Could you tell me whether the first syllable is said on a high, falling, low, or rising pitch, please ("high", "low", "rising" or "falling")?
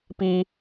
high